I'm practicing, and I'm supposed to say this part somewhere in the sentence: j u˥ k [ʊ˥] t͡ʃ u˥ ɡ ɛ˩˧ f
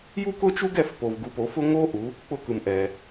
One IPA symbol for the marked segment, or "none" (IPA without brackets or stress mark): ʊ˥